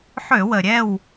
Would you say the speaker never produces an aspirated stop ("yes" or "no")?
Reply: yes